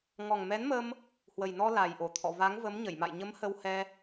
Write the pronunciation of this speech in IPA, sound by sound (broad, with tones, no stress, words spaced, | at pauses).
ŋɔ˨˩ŋmɛ˨˦nmə˧m | hwə˨˩jnɔ˧ la˨˩jʔo˧˩t̪ʰɔ̰˧˨ va˨˦ŋvə˨˦mɲə˧˩j ma̰˧˨jɲə˨˦m hə˧whɛ˧